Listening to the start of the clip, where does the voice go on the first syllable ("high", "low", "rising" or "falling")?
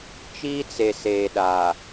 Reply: high